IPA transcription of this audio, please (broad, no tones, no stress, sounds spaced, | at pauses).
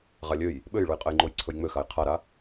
ʁ a lʲ ø j | ɓ ø j ɭ u j qʼ ɘ j ŋ͡ǃ o j ǀʰ ɵ j ŋ͡m ø x a j qʰ a ɾ a